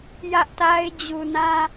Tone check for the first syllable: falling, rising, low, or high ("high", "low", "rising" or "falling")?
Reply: high